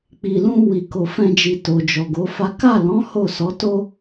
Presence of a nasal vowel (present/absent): present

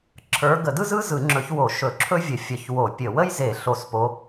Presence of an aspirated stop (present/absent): present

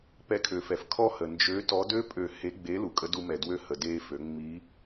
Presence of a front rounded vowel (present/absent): present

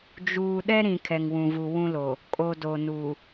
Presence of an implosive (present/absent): present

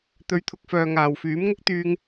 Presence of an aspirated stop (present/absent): present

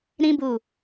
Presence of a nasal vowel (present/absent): present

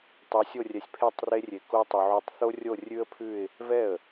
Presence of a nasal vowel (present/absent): absent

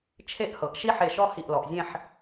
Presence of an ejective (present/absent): absent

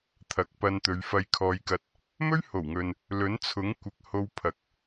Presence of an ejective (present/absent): absent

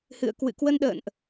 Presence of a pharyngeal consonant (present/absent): absent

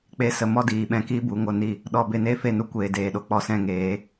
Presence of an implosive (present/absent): present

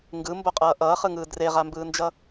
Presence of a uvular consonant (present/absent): present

